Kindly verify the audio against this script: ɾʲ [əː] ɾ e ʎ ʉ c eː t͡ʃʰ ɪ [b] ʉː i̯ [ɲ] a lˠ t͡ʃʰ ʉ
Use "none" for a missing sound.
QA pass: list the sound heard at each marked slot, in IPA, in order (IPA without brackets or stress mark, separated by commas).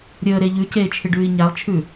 əː, ɖ, ɲ